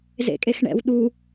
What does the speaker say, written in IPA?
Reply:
zḛkʼexɳɛ̰w ɗu

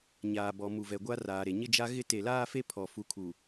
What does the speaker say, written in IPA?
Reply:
ɲaː˨bɔ˨ mu˨vɛ˨ɡʷa˦ raː˨ɾe˨ ɲɪ˦ d͡ʒa˦ ɣɪ˦te˨ laː˦fe˦ pʰɔ˨ fu˨ kʰu˨

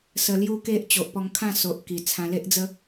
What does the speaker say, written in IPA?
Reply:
sə˧lju˦ke˦ʔ t͡ɕo˨ʔpɔ˧ŋkʰã˥˧so˨ʔ ki˨˩t͡sʰã˧ le˦ʔd͡zə˦

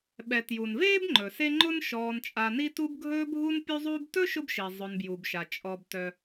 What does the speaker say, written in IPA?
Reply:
ɓɛ˨ tju˩nveː˥bŋ͡ǃɵ˩se˦ ŋ͡ǃʊ˥n ʃɔː˨nt͡ʃʼa˨ni˦tu˦b ɡʱɵː˦bʱu˦n pʲu˦zˤuː˦btɵ˥ ʃʊ˥bʃi˩ zˤʊ˨nbju˩bʃa˩ t͡ʃʼɔ˩b tœ˩

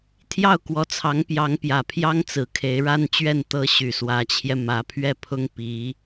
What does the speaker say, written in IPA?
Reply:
t̪ʰjɑ˥˩ʊ̯kwɔ˧˥t͡sʰɑ˧˥ŋ pjɑ˧˥ŋpjä˨˩pʰjɑ˥ŋt͡sɹ̩˨˩ kʰe˧˥ɪ̯ɻa˥n t͡ɕɥɛ˥˩n t̪ɤ˧˥ ɕy˨˩swä˧˥t͡ɕʰjɛ˧ mä˧˥pʰɥɛ˥˩pʰʊ˥ŋ pi˧˥

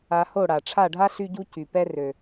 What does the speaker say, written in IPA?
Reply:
a˧ho˦˨ ɽa˨ ʈ͡ʂʰa˦˨ɖʱa˦ ɬy˦ɟu˦ cy˨pɛ˦ rø˨

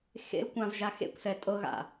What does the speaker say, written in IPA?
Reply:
xḛl kʷãvʒa xḛkʷsɛ tʼɤɣa̰

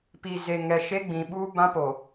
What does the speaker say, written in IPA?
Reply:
pi˨ze˨ŋɛ˨ ʃe˦ɡ͡bĩ˨ɓuː˦ bã˦poː˨

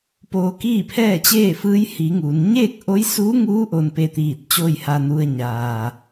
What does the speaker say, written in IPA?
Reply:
poː˧kiː˥˨pʰɛː˥˨t͡ɕeː˥˨ fɯː˧˥jhiː˩˧ ŋuː˩n ɲeː˥˨k̚ʔo˧˥jsuː˧˥ŋuː˧˥ ʔo˧npe˧t̪iː˧˩t̚ t͡ɕoː˥˨jha˧nu˧ə̯ ɲaː˩

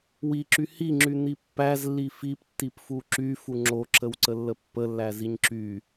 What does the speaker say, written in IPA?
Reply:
wiǁy hiŋ͡ǁyn̪i pːæzlːi fiptːipfu ǁyfu ŋ͡ǁoǁəwǀəlːə pːəlːæziɲ ǁy

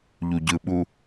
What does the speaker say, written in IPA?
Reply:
ʎuɟɯɓu

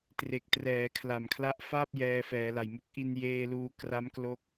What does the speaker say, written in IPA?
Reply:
tre˨˩k̚trɛː˩˦kʰla˨˩m kʰla˦˥ʔfaː˥˩p̚ jɛː˧fɛː˩˦ la˨˩jmu˦˥k̚ʔi˧n jeː˧luː˧kra˦˥m klo˥˩k̚

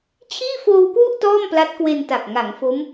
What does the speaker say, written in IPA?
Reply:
t͡ɕʰiː˥˩ foː˧wkwu˥˩ʔ tɔː˥˩mpla˦˥t̚kwe˧nta˨˩k̚ ŋa˩˦ŋ fo˦˥m

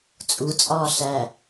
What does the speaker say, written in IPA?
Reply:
t͡sʼut͡sʼɒː ɬæ

